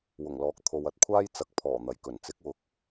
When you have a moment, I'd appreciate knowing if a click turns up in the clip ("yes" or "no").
no